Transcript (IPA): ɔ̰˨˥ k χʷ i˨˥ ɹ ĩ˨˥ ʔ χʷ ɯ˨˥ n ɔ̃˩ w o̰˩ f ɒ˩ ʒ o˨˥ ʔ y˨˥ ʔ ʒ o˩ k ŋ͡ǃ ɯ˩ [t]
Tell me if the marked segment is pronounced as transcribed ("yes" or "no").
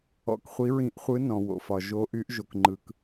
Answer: no